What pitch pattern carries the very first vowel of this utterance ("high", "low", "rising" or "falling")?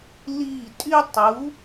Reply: falling